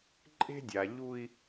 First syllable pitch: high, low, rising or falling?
high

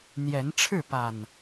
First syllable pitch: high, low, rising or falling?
rising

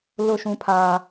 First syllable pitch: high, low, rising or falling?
falling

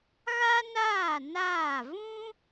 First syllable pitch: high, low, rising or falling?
high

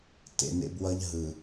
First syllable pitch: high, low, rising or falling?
low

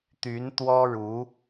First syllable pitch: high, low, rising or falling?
rising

